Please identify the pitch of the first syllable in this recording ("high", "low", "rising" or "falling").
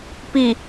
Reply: low